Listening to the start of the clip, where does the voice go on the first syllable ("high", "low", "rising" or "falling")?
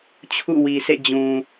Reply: falling